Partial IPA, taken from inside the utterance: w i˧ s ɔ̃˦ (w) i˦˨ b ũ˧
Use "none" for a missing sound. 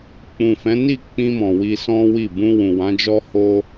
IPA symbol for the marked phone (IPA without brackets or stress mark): w